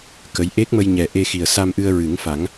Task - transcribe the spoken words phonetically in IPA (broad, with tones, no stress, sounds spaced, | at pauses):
k ə˧˥ j ʔ e˦˥ k̚ m ə˧ j ɲ ɛ˨˩ ʔ e˧ x i˨˩ ə̯ s a˧ m ʔ ɨ˧ ə̯ ɹ ɨ˨˩˦ ŋ f a˨˩˦ ŋ